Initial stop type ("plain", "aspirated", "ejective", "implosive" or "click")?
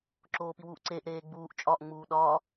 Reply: click